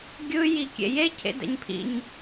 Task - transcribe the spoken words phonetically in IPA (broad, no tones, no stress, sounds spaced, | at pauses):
ɡʲ ɯ j i kʲ ḛ j e cʰ ḛ d ɛ̰ ɲ pʰ ḭ ɲ